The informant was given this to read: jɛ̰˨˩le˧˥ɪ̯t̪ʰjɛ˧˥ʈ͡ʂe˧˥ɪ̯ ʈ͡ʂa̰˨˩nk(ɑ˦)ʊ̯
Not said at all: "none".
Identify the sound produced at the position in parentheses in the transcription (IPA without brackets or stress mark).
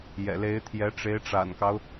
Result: ɑ˦